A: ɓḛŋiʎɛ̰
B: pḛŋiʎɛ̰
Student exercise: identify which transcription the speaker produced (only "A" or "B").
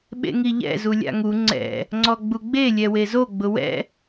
A